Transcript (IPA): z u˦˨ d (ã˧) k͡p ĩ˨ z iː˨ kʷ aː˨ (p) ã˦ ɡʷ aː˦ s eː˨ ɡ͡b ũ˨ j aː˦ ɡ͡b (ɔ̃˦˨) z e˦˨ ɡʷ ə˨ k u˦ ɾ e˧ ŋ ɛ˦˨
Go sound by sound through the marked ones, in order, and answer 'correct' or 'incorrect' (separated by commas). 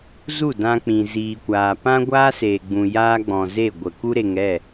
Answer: correct, correct, incorrect